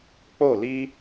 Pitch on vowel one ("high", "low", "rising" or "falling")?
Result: falling